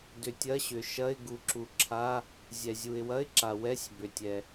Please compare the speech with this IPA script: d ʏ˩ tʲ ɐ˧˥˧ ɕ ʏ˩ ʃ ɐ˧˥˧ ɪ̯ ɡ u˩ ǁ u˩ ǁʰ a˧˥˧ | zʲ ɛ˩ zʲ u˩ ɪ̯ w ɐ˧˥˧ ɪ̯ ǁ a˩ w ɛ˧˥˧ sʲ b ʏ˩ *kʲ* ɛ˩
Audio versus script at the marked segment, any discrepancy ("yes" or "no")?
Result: yes